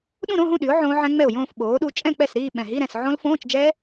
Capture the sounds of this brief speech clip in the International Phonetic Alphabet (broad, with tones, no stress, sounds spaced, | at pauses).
ɗ ũ˥˧ ɾ õ˧˥˧ ɦ ũ˥˧ ɗ y˩˥ ʊ̯ ʕ õː˦˥ ʕ ɛ̃˦˥ ŋ͡m ɛ˥˩ ʊ̯ j õː˥˧ f ɓ oː˩˥ ɗ u˦˥ t͡ʃʼ ɛ̃˥˧ k͡p ɛ˥˩ s ɾ iː˥˧ ɓ ɛ̃˨˩ ɦ i˧˥˧ ɾ ɛ̃˥˩ s ʕ õ˦˥ l f õː˧˥˧ t͡ʃ d͡ʒ ɛ˦˥